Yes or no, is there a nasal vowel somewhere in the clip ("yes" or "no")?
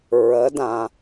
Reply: yes